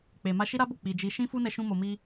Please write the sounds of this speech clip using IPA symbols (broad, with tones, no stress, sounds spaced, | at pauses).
k͡p e˨ m a˧ ʃ i˦ ɾ a˦ b o˦˨ k͡p i˨ d͡ʒ i˧ ʃ ĩ˦ f u˦ n ɛ˧ ʃ ũ˧ m o˨ m i˧